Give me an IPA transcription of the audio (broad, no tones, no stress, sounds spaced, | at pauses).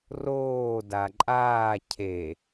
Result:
r oː d a ǃʼ aː cʰ e